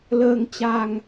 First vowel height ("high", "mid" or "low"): mid